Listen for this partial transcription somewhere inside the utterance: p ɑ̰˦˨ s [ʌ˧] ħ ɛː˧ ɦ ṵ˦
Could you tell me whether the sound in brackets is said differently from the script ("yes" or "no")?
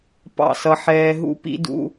no